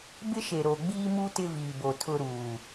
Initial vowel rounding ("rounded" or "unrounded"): unrounded